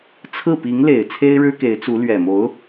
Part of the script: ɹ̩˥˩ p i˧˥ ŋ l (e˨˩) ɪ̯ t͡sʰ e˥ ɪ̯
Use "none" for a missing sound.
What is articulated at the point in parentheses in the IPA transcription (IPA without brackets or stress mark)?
e˨˩